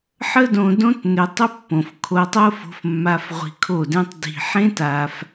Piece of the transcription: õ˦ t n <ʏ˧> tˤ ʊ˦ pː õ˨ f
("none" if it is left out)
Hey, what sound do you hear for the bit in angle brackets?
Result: ʏ˧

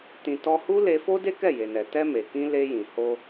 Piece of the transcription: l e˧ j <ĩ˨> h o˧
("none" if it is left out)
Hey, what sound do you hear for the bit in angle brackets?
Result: ĩ˨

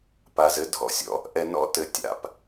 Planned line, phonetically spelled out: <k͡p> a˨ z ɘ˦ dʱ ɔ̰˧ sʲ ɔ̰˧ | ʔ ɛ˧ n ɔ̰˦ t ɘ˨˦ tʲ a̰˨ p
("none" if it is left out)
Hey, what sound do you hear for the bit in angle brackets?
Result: p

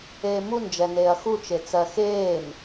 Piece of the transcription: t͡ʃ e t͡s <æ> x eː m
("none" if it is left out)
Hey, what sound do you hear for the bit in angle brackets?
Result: ɜ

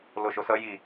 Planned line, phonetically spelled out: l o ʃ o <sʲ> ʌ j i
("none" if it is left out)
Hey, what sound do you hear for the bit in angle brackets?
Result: s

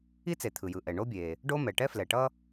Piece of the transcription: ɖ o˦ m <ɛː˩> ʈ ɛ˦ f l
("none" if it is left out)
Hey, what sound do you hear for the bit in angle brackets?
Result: ɛ˩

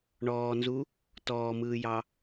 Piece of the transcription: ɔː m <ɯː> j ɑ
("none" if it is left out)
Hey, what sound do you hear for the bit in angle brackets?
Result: ɯː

